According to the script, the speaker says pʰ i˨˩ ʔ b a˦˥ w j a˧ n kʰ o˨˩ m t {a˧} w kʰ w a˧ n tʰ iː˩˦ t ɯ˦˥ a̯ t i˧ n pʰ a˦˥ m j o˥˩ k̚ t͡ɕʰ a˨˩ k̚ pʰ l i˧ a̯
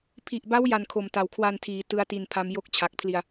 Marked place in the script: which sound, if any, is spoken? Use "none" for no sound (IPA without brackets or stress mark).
a˨˩